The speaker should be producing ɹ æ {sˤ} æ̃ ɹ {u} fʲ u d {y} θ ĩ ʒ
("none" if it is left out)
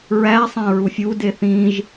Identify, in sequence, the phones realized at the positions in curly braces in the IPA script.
sˤ, u, e

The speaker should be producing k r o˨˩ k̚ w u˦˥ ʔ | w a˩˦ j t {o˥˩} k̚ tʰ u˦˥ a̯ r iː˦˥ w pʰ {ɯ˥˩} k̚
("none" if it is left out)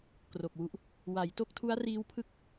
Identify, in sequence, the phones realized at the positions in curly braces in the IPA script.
o˥˩, ɯ˥˩

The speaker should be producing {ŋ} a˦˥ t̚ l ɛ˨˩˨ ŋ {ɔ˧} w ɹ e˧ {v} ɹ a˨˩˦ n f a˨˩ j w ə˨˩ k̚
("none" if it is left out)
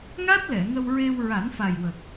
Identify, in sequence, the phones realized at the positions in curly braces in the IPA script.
ŋ, ə˧, w

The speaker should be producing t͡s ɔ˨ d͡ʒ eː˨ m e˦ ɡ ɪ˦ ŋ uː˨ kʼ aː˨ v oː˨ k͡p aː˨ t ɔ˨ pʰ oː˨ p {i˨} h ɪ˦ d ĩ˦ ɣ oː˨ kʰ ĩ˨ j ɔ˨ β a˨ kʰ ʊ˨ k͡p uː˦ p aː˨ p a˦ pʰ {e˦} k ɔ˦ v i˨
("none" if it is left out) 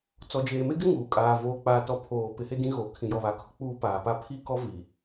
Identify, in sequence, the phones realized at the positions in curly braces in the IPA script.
ɪ˨, i˦

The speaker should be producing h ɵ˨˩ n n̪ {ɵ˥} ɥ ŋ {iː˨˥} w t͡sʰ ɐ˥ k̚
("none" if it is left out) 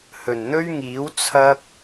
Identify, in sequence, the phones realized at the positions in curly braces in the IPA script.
ɵ˥, iː˨˥

